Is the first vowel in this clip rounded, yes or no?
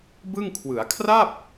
no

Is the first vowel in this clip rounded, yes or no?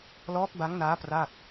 yes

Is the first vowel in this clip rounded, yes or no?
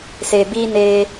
no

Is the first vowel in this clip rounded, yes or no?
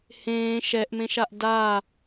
no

